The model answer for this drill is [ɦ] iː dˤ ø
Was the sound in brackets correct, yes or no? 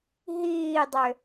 yes